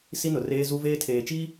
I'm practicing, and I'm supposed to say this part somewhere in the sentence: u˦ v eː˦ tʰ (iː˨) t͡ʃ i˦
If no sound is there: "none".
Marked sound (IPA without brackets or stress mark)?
eː˨